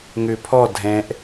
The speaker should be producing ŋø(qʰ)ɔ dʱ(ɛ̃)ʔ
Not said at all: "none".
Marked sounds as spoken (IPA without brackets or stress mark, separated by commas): pʰ, ɛ̃